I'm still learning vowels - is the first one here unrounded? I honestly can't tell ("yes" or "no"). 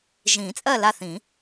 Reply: yes